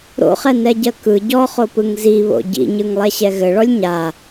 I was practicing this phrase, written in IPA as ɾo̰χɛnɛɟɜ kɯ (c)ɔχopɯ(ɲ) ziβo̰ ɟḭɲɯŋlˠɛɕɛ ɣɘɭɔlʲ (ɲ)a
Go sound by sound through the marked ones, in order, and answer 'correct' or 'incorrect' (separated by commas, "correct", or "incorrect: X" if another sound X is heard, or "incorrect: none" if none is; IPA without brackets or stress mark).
incorrect: ɟ, incorrect: ŋ, correct